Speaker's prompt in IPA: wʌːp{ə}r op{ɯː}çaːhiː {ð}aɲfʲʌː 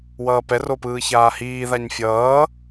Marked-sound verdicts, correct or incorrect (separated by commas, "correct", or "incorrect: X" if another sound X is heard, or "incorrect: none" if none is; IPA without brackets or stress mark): incorrect: ɛ, correct, correct